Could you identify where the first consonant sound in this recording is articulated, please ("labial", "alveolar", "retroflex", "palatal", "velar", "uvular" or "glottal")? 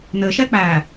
alveolar